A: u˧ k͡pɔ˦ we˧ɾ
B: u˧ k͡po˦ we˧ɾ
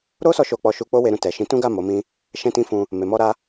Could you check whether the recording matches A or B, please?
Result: B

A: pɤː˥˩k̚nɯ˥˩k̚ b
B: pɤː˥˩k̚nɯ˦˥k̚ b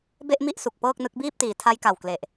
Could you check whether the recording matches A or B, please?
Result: B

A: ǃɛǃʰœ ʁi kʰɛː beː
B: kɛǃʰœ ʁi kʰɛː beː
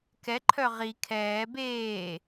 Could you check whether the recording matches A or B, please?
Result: B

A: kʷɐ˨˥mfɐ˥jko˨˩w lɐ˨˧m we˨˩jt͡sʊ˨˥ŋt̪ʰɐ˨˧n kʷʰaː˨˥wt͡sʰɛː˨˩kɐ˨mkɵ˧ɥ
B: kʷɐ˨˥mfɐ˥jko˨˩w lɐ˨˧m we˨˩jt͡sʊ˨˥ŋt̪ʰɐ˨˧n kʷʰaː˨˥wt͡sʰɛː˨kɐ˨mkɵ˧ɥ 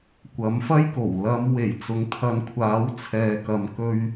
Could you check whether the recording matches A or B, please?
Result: B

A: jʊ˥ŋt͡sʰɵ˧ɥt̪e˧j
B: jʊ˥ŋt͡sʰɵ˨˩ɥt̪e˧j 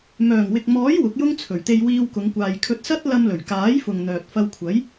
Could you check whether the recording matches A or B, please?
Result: B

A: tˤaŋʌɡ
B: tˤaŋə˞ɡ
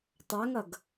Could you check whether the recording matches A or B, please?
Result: A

